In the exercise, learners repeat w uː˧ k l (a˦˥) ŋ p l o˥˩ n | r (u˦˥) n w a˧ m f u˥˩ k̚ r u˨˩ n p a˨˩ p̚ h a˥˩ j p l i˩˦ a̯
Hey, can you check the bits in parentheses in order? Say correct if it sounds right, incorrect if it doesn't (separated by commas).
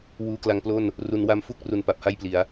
incorrect, incorrect